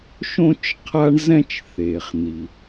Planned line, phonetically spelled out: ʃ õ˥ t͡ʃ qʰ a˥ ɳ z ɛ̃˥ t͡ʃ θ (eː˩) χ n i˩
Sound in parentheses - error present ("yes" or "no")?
no